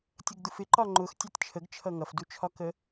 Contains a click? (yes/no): yes